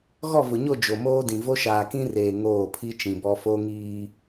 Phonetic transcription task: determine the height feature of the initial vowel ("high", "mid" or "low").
mid